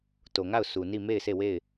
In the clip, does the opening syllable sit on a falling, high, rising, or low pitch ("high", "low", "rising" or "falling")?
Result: low